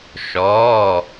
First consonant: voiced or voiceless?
voiceless